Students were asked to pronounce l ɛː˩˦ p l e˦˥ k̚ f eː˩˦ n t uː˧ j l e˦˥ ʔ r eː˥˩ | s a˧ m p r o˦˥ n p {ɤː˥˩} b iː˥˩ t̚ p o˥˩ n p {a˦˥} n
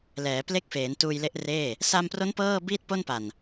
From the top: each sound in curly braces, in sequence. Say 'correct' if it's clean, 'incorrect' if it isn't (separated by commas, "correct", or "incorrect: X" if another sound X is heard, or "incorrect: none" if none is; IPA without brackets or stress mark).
correct, incorrect: a˨˩